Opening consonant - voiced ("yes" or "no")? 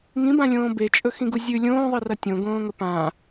yes